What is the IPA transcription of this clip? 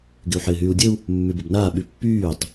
ɡ ɪ u̯ ħ ɪː ɦ yː u̯ dʲ ə u̯ | mː y b ə b n aː ɓ y pː yː tˤ

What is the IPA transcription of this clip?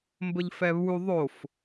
m b ə ʎ f ɛ β u ðˤ o f

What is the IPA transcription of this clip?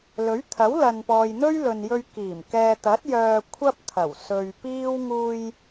l ɵ˨˥ ɥ t̪ʰ ɐ˨˥ w l ɐ˨ n p ɔː˨ j n̪ ɵ˥ ɥ l ɵ˨ n j ɵ˧ ɥ k iː˨˩ m k ɛː˨ t̪ ɐ˨˥ t̚ j œː˧ kʷʰ ɐ˥ p̚ t̪ʰ ɐ˨˩ w s ɵ˨ ɥ p iː˥ w ŋ uː˧ j

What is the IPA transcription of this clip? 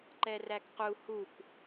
ǃ ɛ r æ k q u h u k

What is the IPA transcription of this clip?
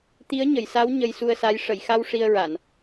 t̪ i˧˥ ə̯ ɲ ə˨˩˨ j s a˧˥ w ɲ ə˧ j s u˧ ə̯ s a˧˥ j ʂ ə˨˩˨ j x a˧ w ʂ i˧ ə̯ ɹ a˨˩˨ n

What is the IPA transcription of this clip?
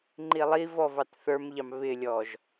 ŋ͡ǃ i lˠ i v ɔ v ɑ t θ ə˞ m ʎ ɑ m β ɪ lʲ ɔ ʒ

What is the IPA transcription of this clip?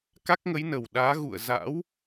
k a˦˥ k̚ ŋ ə˨˦ j n ə˨˩ w ɗ aː˨˦ ɣ ṵ˧˨ ə̯ z a̰˧˥ w

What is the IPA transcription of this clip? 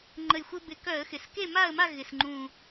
ŋ͡ǃ ə˧˩ j xʷ ɘ˦ b ɪ˧˩˧ k œ˧˩˧ ə̯ x ɪ˩ s k e˥˨ m a˥˨ ə̯ m a˥˨ ɣ ɪ˩ s ŋ͡ǃ ũ˧˩

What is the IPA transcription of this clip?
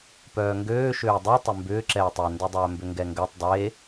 p œː ŋ ɡ øː ʃ øː dˤ ø tˤ ʏ m b ʏː ǁ ɛː tˤ ɛ n d ø dˤ œː m b ʏ ŋ ɡ ɛ ŋ ɡ ø tˤ dˤ e

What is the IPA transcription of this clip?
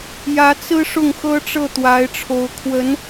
j ä˧˥ t͡s ɹ̩˥ ʂ ʊ˥˩ ŋ x ɤ˥ ʈ͡ʂ ɤ˥˩ t̪ w a˧˥ ɪ̯ ʈ͡ʂʰ o˧˥ ʊ̯ kʰ w ə˧˥ n

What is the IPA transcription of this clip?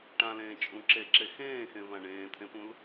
ʈ ã l ẽː t͡ʃʼ ũ ǁ e ǁ e x ẽː x ẽ v ã ɳ ẽː t̪ʰ ẽ p ũ l

